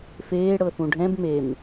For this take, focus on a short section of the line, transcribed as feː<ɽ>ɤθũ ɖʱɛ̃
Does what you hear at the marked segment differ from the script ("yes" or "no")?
no